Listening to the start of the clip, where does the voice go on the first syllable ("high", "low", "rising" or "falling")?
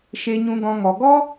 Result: high